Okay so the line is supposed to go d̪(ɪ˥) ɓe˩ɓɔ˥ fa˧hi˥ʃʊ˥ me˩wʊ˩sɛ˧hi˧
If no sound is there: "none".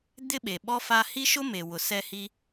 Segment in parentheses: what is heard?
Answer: ɪ˥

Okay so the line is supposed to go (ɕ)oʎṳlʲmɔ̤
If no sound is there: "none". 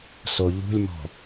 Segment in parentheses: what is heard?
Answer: s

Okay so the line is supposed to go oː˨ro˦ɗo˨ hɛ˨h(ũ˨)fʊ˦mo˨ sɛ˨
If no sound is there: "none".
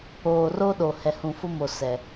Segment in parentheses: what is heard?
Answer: ũ˨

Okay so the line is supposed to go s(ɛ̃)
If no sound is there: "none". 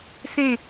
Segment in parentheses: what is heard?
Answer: ẽ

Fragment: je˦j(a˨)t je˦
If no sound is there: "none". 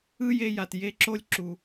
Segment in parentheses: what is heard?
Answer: a˨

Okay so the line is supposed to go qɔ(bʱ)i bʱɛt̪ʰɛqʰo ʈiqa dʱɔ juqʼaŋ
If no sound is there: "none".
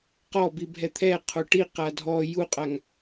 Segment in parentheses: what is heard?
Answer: b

